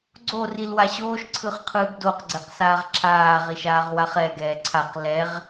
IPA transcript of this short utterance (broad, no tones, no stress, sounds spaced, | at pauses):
ɡ͡ǀ o r i l w a ɕ oː ʃ ǀʰ ɯ χ qʰ ɯː ɡ d o q ɡ͡ǀ ɛ q s aː ʁ ǁʰ aː ʁ i ʃ aː ʁ w a χ ɛ ɡ ɛː ǀʰ a q l ɛ ʁ